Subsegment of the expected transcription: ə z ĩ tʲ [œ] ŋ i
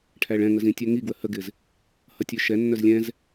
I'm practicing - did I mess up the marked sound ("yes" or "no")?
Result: no